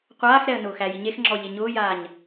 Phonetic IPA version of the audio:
qʷ aː x ɾ ɛ ə̯ n ʊː x æ j i ɲ e x ŋ͡ǁ ɔ ʎ e ɲ ʊː j aː ɲ

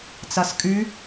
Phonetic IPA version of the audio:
t͡s a s kʼ y

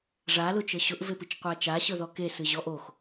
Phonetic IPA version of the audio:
ʐ a l ʊ t͡ʃ ɤ ɕ ʊ ʔ v e p ɨ t͡ʃ qʷ a t͡ʃ a ɕ ɤ ð ɔ k e s ɨ ʑ ɔ ʔ o x

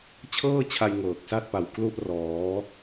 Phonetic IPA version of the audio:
t͡ɕʰ ɤː˥˩ t͡ɕʰ a˧ j ŋ ɤː˨˩ k̚ s a˥˩ t̚ p a˨˩ w k l u˥˩ ʔ r ɔː˩˦

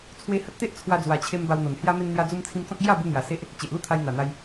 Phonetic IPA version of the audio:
t͡sʰ w e˧ h ə˦ t̚ t̪ e˦ ʔ t͡sʰ w a˧ d͡z w a˨˩ t͡ɕʰ e˧ m b a˧ w n̪ o˨˩ n h j a˦ m e˧ n n̪ j a˧ d͡z u˧ m t͡sʰ ĩ˧ m t͡s ɔ̃˦ k̚ ɡ j a˥˧ b u˧ n̪ j a˨˩ s e˦ ʔ | t͡ɕ e˨ ʔ l u˥˧ t̪ʰ a˧ j n̪ a˨˩ n̪ a˧ j

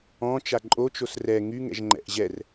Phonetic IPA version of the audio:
ɔ̃ t͡ʃ a ǃʼ o t͡ʃ o s r ɛ ŋ y ŋ ɛ̰ ʒ ŋ͡ǃ ɛ̰ ʔ ʑ ɛ r

